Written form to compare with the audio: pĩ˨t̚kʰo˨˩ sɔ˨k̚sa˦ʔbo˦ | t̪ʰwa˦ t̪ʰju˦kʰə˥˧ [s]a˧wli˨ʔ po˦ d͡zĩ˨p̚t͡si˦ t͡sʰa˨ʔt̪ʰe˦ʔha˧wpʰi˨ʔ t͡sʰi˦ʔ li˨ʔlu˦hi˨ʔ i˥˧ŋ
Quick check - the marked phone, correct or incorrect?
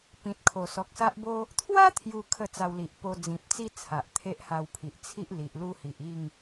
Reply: incorrect